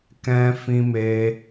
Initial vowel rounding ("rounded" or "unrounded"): unrounded